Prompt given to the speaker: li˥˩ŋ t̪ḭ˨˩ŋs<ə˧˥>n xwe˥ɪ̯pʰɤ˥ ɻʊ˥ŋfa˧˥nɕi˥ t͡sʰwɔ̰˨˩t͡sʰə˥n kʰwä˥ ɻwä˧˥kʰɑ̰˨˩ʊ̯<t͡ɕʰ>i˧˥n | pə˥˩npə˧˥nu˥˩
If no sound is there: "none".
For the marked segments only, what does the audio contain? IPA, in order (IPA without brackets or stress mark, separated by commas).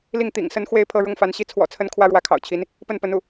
ə˧˥, t͡ɕʰ